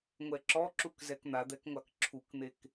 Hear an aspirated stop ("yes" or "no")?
yes